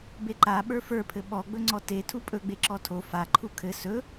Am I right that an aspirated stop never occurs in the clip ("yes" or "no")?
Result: no